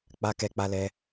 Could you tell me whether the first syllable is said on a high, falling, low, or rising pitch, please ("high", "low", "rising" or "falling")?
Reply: high